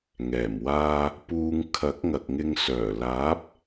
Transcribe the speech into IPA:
ŋɛː˨˩mwaː˧ | puː˧ŋ kʰɐ˨˥k̚ŋɐ˨k̚ŋɪ˧ŋ sœː˨˩laː˨˥p̚

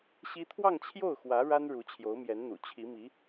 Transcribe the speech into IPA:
ɕi˥ t̪ʰwɑ˥˧ŋt͡ɕʰjo˥˩ʊ̯xwä˧˥ ɻa˥n ɻu˧˥t͡ɕʰjo˧˥ʊ̯mjɛ˧˥nn̪ṵ˨˩ t͡ɕʰi˧˥mi˧˥

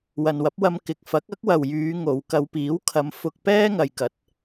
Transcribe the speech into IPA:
wɐ˨nwɐ˨˥p̚wɐ˧mkɪ˨k̚ fɐ˨˥k̚ɐ˥k̚wɐ˨wjyː˨˧ ŋo˨˧w kɐ˨˧wpiː˨˥w kʰɐ˨˧mfʊ˧k̚ pɛː˥ŋɐ˨jkɐ˨˥t̚

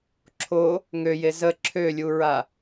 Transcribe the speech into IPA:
ǁʰo | ŋøje zə ǁʰølʲuɹa

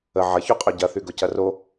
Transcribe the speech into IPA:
ə ʕɐçoqʼø ɟɐθyɡʊ cɐro

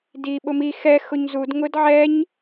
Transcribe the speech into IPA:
di ɓʊmi xɛ xʊɲzud ŋʊdʕɛɲ

